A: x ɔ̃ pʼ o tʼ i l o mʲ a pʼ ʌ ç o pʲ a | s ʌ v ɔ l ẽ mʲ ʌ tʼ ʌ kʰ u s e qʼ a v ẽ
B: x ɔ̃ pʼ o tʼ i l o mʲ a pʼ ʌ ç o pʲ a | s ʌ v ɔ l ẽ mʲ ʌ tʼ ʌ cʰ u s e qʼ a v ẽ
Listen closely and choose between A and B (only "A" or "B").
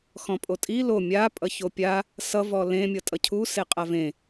B